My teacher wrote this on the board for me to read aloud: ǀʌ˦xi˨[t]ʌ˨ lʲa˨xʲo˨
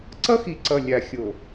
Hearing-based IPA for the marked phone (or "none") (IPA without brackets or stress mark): ǀ